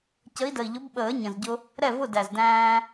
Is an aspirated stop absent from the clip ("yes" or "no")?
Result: yes